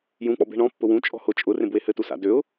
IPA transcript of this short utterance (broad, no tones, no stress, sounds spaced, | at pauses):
j ũ k͡p ɔ̰ b e̤ ɳ ɔ̃ pː ʊ w ũ t͡ʃʼ ɔ̤ h ʊ t͡ʃʼ ʊ r ẽ b w e h ɘ t u s a̰ d ø ʊ̯